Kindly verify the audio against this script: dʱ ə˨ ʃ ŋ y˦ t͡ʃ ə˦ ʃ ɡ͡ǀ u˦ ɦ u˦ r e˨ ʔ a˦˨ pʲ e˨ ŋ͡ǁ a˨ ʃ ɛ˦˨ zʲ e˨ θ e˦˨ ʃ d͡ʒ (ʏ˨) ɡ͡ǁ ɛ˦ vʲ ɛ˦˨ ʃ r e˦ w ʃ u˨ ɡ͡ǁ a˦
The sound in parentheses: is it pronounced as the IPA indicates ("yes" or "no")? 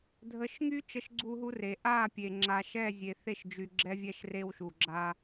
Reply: no